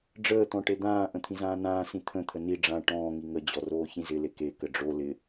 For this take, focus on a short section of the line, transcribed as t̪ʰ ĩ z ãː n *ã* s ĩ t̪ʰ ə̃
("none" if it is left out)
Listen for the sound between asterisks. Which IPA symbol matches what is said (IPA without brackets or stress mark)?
ãː